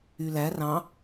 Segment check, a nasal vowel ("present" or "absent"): present